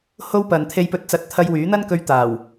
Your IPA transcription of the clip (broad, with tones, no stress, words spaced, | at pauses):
ho˥w pɐ˨nt̪ʰe˧jpɵ˧t̚t͡sɐ˧t̚ t̪ʰɐ˧jwyː˨˥n̪ɐ˥nkɵ˧ɥ t̪aː˨˩w